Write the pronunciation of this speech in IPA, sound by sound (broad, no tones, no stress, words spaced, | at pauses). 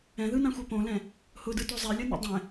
ɛ̃ðɯnãxʷɛ põlɛ̃ | hʊdɯto zˤɛlʲʌnḭ dˤɛ̃